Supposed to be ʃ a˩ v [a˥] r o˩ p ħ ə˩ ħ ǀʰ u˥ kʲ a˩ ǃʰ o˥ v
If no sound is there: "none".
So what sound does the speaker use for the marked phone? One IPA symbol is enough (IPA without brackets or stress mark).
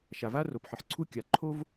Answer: a˥